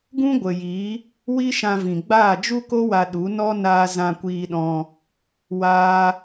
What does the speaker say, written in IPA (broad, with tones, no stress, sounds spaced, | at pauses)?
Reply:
ɡ ũ˦ ɡʷ ə˨ j i˨˦ | w i˦ ʃ ã˧ v ĩ˨ ɡ͡b aː˦˨ d͡ʒ u˦ k o˦ w a˧ ɗ u˨˦ n ɔ˦ n aː˧ z ã˧ kʷ iː˧ ɗ ɔ̃˧ | w aː˦